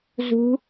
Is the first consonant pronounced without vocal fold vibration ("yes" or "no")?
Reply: no